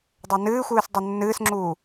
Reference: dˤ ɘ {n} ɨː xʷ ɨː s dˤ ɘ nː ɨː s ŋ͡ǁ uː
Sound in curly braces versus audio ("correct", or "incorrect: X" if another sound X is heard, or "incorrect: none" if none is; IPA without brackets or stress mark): correct